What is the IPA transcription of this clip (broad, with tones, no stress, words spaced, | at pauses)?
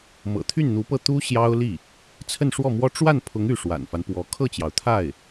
mɤ̰˨˩t̪ʰy˥˩nn̪u˧˥pɤ˥˩ t̪u˥ ɕjɑ˥ʊ̯li˥˩ | t͡sʰə˥˧nʂwɔ˥˩mwɔ˥ ʈ͡ʂwa˥˩npʰʊ˧˥ŋ y˥˩ʂwa̰˨˩nfa˦npwɔ˧˥ kʰɤ˥˩t͡ɕjɑ˩ʊ̯t̪ʰa˥˩ɪ̯